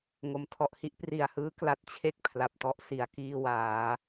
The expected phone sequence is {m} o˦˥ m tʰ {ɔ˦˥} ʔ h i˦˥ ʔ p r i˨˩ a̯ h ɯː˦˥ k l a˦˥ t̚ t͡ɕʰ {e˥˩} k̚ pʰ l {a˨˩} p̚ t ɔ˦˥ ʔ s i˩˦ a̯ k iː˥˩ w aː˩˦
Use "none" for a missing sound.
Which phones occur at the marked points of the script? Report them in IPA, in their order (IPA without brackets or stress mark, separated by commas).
ŋ, ɔ˦˥, e˥˩, a˨˩